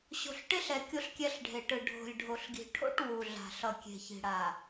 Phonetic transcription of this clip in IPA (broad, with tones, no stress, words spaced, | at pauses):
ɕo̤˨ɬʈe˦ɬɛ˨ kʲo˦ɬkʲɛ˦ɬɖʱe˨ʈɯ˨ ɖʱo̤˨lʲɖʱo˨ɬɡi̤˨ʈʰo̰˦ʈ wu˨ɮa̤˨ɬʌ˨ kʲe̤˨çi̤˨ɽa˨